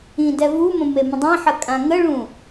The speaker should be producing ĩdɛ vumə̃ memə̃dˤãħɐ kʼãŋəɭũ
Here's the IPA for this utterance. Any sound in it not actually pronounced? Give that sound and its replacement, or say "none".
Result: none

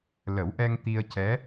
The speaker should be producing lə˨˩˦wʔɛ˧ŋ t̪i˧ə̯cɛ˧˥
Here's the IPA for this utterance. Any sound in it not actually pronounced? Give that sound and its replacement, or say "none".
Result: none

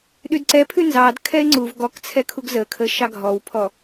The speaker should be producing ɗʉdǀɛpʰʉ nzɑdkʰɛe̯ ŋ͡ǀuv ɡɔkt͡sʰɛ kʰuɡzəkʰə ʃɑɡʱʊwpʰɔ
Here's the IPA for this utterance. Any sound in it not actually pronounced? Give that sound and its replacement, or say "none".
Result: ʊ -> ɔ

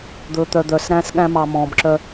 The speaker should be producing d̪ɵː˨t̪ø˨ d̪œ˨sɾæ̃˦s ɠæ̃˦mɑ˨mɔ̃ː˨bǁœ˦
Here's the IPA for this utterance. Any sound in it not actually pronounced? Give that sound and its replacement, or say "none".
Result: ø˨ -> œ˨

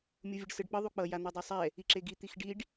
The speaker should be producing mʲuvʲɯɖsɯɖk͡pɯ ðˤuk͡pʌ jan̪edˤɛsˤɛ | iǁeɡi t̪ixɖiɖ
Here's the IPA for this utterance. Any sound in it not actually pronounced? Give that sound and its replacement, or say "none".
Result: none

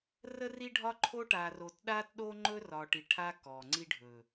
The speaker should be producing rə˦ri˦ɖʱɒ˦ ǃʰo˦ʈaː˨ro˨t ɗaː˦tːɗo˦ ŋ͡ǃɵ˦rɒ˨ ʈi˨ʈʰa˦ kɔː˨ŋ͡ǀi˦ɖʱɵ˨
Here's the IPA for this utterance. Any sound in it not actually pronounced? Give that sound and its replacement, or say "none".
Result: tː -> t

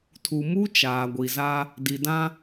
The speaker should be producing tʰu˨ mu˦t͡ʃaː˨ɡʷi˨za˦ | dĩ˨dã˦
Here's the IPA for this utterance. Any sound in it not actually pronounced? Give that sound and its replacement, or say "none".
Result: ĩ˨ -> i˨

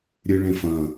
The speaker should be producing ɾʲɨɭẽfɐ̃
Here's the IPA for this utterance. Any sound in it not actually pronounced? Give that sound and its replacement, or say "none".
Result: none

